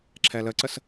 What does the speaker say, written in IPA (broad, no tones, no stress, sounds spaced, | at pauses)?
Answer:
ǁʰ ɛ l ə ǀ ə s